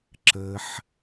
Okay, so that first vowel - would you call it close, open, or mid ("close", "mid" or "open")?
mid